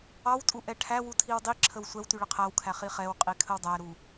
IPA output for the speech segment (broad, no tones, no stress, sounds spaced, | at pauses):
ɑ w tʼ u ʔ ɛ ʈʰ æ w u tʰ i w dˤ i ǁʰ ə w sʷ ɛ w t y ɭ ə qʰ æ w kʰ æ χ i χ ɛ w qʼ i kʰ ə w dˤ æ ɾ u